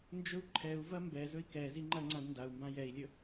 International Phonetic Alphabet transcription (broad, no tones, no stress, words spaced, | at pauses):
nd͡ʒɵu̯ǃʰɛu̯vɐ mbɛzɵi̯ kɛzi ŋ͡ǃɐ ŋ͡ǀãdndau̯mbã jɛi̯lʲɵ